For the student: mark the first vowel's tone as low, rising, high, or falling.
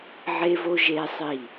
high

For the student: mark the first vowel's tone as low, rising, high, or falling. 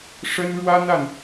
high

